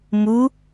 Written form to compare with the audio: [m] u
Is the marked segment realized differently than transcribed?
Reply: no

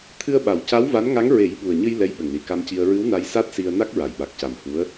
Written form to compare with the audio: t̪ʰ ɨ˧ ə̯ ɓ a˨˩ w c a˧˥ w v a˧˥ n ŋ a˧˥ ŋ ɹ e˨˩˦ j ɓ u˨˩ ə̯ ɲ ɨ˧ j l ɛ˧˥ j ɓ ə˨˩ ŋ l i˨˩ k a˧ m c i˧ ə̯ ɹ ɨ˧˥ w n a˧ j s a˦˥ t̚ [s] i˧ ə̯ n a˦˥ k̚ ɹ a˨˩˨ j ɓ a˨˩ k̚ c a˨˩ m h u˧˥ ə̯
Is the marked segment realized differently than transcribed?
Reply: no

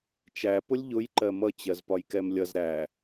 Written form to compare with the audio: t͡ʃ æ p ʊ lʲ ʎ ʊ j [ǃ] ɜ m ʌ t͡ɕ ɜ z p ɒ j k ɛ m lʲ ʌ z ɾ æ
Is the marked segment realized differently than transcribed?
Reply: no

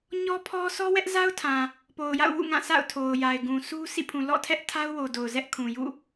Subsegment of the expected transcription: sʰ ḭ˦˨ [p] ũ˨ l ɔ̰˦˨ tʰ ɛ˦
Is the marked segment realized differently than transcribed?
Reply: yes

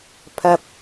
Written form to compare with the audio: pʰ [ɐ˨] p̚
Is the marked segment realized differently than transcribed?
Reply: no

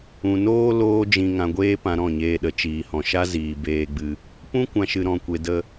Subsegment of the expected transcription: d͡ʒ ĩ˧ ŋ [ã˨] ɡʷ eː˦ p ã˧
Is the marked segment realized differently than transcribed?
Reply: yes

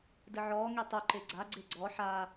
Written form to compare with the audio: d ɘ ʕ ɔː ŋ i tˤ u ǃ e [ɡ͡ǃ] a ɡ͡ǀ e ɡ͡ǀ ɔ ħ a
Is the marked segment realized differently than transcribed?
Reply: yes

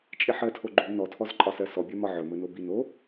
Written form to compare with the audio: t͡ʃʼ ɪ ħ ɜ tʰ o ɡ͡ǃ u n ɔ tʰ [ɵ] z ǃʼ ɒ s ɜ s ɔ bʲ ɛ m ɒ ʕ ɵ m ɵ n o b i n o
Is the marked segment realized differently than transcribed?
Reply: yes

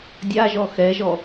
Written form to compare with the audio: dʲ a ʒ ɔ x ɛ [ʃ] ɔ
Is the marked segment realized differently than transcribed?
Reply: yes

